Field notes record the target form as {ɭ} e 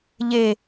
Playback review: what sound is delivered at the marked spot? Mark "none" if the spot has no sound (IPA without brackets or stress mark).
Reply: ʎ